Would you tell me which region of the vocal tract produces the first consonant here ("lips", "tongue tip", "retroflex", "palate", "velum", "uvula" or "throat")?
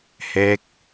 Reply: throat